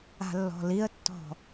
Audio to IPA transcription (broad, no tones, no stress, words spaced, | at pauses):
a̤lːɔ̤liə̯tːɔ̤